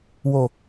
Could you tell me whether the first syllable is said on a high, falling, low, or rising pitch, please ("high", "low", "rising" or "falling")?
low